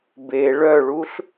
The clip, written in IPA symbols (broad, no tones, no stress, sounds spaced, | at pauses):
b e ɭ œ ɭ u ɬ